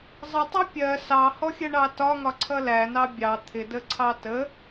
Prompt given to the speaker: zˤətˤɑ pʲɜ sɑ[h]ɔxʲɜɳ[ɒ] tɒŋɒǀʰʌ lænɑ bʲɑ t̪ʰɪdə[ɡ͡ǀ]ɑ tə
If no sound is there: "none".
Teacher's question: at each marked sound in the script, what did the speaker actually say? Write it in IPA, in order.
h, ɑ, ǀʰ

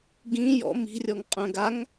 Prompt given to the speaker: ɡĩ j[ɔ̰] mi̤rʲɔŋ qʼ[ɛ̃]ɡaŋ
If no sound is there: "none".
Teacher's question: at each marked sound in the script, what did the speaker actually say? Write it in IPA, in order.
ɔ̰, œ̃

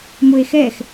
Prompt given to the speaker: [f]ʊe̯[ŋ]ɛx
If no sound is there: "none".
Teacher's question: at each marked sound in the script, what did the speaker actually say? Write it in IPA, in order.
m, x

